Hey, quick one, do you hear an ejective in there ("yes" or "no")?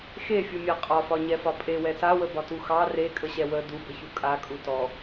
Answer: yes